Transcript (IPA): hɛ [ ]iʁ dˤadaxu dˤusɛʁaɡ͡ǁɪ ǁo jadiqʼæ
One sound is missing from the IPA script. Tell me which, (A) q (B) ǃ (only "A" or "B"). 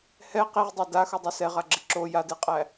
A